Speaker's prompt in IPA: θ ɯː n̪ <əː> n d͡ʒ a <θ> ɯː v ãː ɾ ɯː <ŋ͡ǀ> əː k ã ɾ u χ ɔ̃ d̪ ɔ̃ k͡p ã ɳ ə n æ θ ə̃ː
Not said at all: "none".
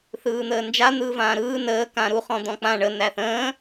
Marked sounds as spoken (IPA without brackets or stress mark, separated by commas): əː, n̪, n